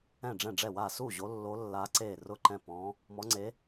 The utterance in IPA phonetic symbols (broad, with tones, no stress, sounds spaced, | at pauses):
ɛ̃˥˩ ɖ͡ʐ ɛ̃˥˩ ɖ͡ʐ ɛ˥˩ w a˥˩ s u˥˩ ʑ o˧˥ lː o˧˥ lː a˧˥ ǀ e˥˩ r ʊ˥˩ ǃ ɛ̃˥˩ p ɔ̃˧˥ | m ɔ˧˥ ŋ͡ǀ e˧˥